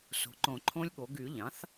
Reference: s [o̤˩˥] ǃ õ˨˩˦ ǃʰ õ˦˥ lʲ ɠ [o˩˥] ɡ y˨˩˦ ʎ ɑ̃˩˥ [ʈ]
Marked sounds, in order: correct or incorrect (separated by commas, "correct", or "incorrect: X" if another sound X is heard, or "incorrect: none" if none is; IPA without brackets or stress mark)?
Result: correct, correct, incorrect: θ